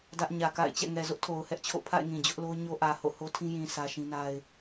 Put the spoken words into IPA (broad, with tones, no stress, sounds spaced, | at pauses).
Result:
d ä˦ ʔ ɲ ä˨ k a̰˦˨ ɪ̯ t͡ɕ ɛ̰˦˨ ŋ ɛ˨ z ʊ˦ ʔ tʰ o˨ ʊ̯ h ɛ˦ ʔ t͡ɕʰ o̰˦˨ pʰ a̰˦˨ ɪ̯ ŋ ĩ˨ d͡ʑ ʊ˦ ʔ l o˦ ʊ̯ ɲ o˦ ʔ ä˨ h o̰˦˨ h o˦ tʰ ĩ˦ j ĩ˨ s ä˦ ʃ ĩ˦ n a˦ ɪ̯